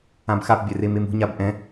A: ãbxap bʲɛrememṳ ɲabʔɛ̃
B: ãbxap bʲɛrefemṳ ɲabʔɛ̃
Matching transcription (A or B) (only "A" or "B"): A